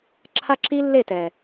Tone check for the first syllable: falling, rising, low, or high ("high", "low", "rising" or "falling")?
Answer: high